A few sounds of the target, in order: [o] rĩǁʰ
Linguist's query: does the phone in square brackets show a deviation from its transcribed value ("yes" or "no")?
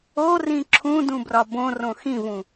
no